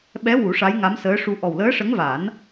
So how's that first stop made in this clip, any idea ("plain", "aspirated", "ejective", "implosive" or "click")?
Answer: implosive